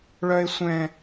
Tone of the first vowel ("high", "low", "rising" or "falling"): high